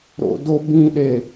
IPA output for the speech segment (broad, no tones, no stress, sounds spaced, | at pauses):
ɾ o̰ d o b ĩ ɗ e